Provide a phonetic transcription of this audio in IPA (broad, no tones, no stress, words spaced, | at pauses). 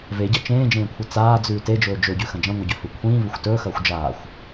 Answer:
veɟɐ t͡ʃẽːd͡ʒẽːkʷʰɨ t͡saːd͡zʉː ted͡ʒɵː d͡ʒɵɟʉxɐ̃ d͡ʒɐ̃ŋʷeɟɵhʉ kʷʰĩːvɵxʷ tɵːxɐːxʷ d͡ʒaːxʷ